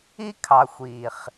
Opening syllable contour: high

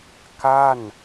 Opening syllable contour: falling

